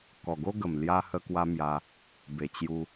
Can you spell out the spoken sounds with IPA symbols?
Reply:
k ɔ˨˩ ɡ o˦ ɡ ə˨˩ m l j a˧ h ə˧ k w a˧ m j a˧ | b e˨˩ t͡ɕ j u˧

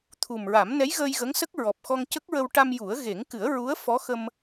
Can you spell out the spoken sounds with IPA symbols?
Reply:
t̪ʰ u˨˩ m ɹ a˨˩˦ m n ɛ˧˥ j ɣ əː˧ j ɣ ə˧˥ ŋ s ə˦˥ k̚ ɹ ɔ˨˩ p̚ x ɔ˧ ŋ c ə˦˥ k̚ ɹ ə˧ w ʈ a˧ m j u˨˩˦ ə̯ ɣ e˨˩˦ ŋ k ɨ˨˩˦ ə̯ ɹ u˧˥ ə̯ f ɔ˧˥ x ə˧ m

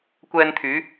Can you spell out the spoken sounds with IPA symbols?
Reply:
kʷ ɛː˧ n t̪ʰ yː˨˧

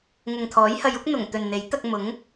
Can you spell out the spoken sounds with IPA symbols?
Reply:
ŋ ʊ˨ ŋ t̪ʰ ɔː˨˥ j h ɐ˧ j ʊ˥ k̚ n̪ ʊ˨˩ ŋ t̪ ɵ˨ n n̪ e˨˥ j t̪ ɐ˧ k̚ m ʊ˨˥ ŋ

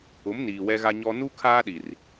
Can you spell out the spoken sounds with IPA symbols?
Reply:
ʊ˨˦ m n iː˨ w ɛ˦ ɣ a˦ ɲ ɔ˦ n u˦ kʰ aː˦ ɗ i˨ r

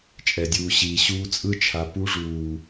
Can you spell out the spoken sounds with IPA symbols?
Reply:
t͡ʃʼ ɛ˨ dʲ uː˨ ɕ iː˨ ɕ uː˧ t͡sʼ ɯ˦ t͡ʃʰ a˨ p u˦ ʐ uː˨

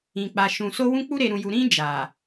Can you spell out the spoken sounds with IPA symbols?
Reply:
ĩ˨ k͡p a˨ ʃ ũ˨ s o˧ w ũ˧ k͡p u˧ ɾ e˨ ɾ ũ˨ j u˨ ɾ ĩ˧ d͡ʒ a˨

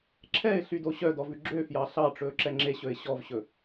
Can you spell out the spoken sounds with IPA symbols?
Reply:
ǁʰ ɛ ɪ̯ ɬ y d o ɕ œ d ɔ v ʉ ɡ͡ǁ ø f j ɑ ɬ ɑ ʈ͡ʂ ɵː ǁ ɛ ŋ͡ǁ e ɕ ɵ ɪ̯ ɕ ɔ v ɕ ɵ

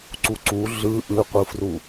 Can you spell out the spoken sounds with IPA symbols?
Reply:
ǀ u ǀ u ɮ ɯ ʔ ɯ qʷ ɯ f r u

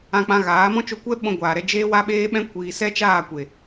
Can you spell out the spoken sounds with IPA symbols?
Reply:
ã˧ k͡p ã˧ ɣ aː˨˦ m ɔ̃˦ t͡ʃ o˧ kʷ ɛ˦ ɓ ɔ̃˧ ɡʷ aː˨ ɾ ɛ˧ d͡ʒ eː˦ w a˦ ɓ eː˦ ɓ ɛ̃˦ kʷ iː˨ s ɛ˦ t͡ʃ aː˦˨ kʷ e˨

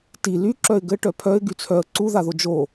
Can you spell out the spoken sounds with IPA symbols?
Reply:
t i l y ǁ œ ɪ̯ ɡ ɘ ʈ œ pʰ œ ɪ̯ ɡ y t͡sʰ œ ə̯ ǀ u ð a ð o d͡ʒ o

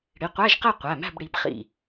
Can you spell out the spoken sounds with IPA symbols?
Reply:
ɽ i˩˧˩ qʷ æ˧˥˧ ʒ q ɛ˥˨ qʷ æ˩˧˩ m æ̤˥˨ b ɽ i˩˧˩ b χ ḭ˧˩

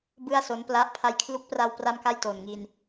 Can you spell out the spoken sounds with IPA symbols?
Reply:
b ɯ˥˩ a̯ s o˦˥ n p l a˦˥ ʔ pʰ a˧ j kʰ l u˦˥ k̚ p r a˧ w p r a˥˩ m k a˥˩ j t o˨˩ n ŋ i˧ n

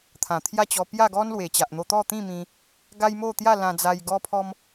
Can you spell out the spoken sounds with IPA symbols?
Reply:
t̪ʰ ã˨˩ t̪ʰ j a˥˧ t͡ɕ ɔ˧ p j a˥˧ ɡ ɔ˦ n l w e˨˩ t͡ɕ a˨ ʔ n̪ o˧ t̪ ɔ˥˧ t̪ ĩ˥˧ m ĩ˧ | ɡ a˦ j m o˥˧ t̪ j a˥˧ l ã˧ d͡z a˧ j ɡ ɔ˦ pʰ ɔ˦ m

